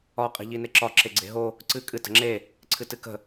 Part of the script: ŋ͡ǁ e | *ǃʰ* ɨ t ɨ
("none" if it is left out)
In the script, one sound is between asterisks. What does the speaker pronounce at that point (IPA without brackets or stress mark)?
ǀʰ